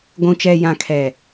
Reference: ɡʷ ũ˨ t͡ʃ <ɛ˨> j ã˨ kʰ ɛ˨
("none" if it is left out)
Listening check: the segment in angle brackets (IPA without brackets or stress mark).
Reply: ɛ˨